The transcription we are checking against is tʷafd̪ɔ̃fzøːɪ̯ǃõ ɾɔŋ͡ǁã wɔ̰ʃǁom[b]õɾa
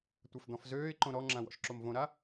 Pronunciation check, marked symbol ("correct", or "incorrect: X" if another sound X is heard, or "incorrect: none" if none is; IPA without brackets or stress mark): incorrect: v